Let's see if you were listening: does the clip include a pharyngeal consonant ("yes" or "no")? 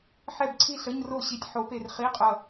yes